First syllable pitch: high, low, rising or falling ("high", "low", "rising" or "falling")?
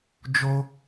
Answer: high